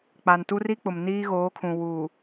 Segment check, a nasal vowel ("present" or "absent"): present